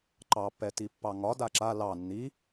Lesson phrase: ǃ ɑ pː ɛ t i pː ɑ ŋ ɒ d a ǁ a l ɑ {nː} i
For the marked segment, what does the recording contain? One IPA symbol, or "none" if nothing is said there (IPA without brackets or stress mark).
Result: nː